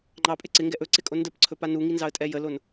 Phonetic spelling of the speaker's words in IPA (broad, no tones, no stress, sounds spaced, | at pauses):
ŋ͡ǃ ɑ pʼ ɪ ǀ ɪ ŋ ɡ ɛ ʔ ɵ ǀ ɪ kʼ o n d ə p ǀʰ ɵ p a n u ŋ i n z ɑ ə̯ tʼ ɛ j ə l o n